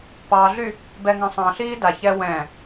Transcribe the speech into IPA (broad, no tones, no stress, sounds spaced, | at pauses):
p ɑ ɮ y | b ɛ ŋ ɑ̃ sˤ ɑ̃ ɬ iː d a ç ɛ w ɛ̃